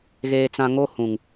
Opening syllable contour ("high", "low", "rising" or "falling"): high